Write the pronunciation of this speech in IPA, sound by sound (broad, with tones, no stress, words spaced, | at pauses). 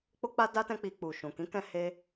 k͡po˦k͡pa˦da˦ tɛ̃˦k͡pi˧ k͡pu˨ʃũ˨ kĩ˨˦kɛ̃˧he˧